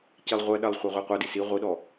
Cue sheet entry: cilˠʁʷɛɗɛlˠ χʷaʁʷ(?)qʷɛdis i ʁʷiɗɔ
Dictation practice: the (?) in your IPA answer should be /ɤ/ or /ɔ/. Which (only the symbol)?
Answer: ɤ